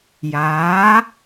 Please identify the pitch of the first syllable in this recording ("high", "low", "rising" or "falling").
rising